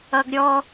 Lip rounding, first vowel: unrounded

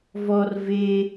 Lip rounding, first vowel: rounded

